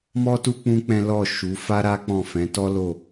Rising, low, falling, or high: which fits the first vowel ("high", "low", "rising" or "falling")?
high